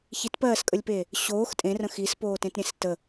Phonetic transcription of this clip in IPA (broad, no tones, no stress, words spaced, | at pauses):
çitpɜːskʼəlʲpe | ɕoːx tʼẽrə̃ xispoːtẽtɾʲẽs tə